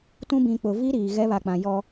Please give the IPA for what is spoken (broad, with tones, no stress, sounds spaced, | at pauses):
t ũ˦ b ĩ˨ k͡p ʊ˨ v i˦ ɾ iː˨ ɣ ɛ˦ β a˨ k͡p ã˨ j ɔ˦